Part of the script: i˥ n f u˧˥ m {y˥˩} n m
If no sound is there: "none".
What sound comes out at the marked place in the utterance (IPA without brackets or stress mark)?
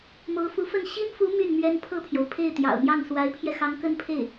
y˥˩